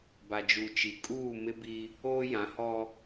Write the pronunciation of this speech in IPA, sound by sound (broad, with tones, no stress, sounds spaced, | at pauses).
b a˨ d͡ʒ u˨ t͡ʃ i˨ kʼ uː˦˨ m ɪ˦ b i˦ | oː˦ j ã˨˦ h ɔ˦